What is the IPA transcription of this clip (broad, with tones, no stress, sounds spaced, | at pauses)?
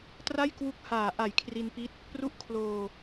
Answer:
t r a˥˩ j k w u˦˥ k̚ h aː˨˩ ʔ a˨˩ j kʰ r i˧ n p i˦˥ t̚ | p r u˦˥ ʔ kʰ l oː˧